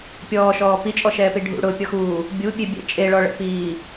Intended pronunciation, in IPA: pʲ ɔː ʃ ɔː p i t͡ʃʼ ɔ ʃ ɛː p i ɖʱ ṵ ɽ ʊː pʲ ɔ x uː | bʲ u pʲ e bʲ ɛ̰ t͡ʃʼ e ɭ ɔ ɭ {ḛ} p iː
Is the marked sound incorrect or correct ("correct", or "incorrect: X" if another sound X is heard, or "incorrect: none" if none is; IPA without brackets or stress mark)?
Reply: incorrect: ɛ̰